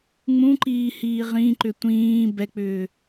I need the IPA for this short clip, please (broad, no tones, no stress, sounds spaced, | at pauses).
ŋ͡m ũ ǃ iː h iː ʁ ĩ ǃ ʏ tʷ ĩː b ɛ k͡p ʏː